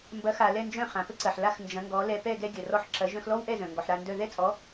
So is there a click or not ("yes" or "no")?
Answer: yes